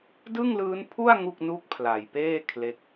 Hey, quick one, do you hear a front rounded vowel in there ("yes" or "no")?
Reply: no